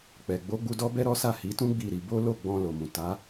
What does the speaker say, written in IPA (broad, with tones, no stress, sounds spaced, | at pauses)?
k͡p ɛ˨ ɡ͡b o˨˦ ɡ͡b u˧ d ɔ˦ b ɛ˦ ɾ ɔ˦ s a˦˨ h i˨˦ t ũ˦ ɡ͡b i˦˨ ɾ i˧ b o˦ l o˦˨ ɡ͡b ɔ̃˧ l o˨ m ũ˨ t a˨˦